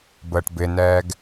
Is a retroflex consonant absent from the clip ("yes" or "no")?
no